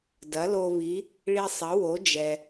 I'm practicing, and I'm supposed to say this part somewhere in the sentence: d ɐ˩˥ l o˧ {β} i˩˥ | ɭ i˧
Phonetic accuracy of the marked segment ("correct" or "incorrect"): correct